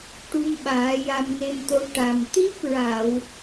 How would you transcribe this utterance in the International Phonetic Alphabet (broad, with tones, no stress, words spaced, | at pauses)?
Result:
ʈu˧mɓaː˨˩˦ja˧m ne˧mt̪o˧˥ ʈa˨˩m t̪i˦˥p̚ɹa˨˩˨w